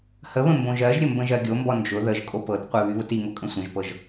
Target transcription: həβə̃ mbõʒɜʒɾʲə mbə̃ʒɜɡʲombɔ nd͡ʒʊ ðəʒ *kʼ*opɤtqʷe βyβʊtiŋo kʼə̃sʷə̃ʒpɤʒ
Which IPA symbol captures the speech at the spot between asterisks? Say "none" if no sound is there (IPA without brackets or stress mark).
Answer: kʼ